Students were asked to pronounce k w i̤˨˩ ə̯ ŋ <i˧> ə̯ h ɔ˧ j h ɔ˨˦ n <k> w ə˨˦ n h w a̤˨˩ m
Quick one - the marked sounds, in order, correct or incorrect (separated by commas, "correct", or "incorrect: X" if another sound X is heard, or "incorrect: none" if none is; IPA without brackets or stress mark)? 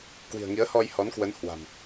incorrect: i˨˦, correct